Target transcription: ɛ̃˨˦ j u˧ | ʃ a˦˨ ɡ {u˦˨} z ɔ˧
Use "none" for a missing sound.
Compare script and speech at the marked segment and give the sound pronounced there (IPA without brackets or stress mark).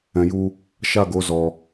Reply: o˦˨